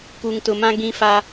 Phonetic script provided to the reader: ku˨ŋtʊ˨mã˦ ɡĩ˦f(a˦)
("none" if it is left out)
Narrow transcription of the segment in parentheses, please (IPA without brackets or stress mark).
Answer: a˦